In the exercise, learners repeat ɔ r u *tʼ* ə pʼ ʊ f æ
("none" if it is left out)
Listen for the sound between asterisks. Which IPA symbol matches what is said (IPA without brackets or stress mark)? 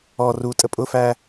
tʼ